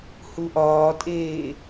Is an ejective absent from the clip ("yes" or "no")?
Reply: no